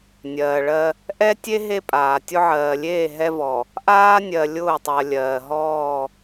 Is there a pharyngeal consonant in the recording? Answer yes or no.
yes